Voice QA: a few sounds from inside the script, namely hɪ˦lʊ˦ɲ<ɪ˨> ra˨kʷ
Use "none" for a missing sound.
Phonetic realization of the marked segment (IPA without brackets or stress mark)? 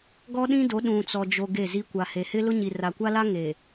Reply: i˨